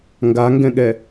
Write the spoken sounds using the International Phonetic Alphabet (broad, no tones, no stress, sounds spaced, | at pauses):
ŋ ɡ a ŋ ɡ ɛ̃ ɠ ɛ